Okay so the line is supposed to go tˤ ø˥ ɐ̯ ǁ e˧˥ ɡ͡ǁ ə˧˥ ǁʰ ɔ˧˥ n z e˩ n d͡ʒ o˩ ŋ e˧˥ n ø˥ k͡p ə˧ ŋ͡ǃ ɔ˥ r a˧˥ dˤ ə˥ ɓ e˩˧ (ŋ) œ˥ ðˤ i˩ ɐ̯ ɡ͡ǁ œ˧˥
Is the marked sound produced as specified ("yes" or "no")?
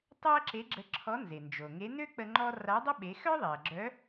no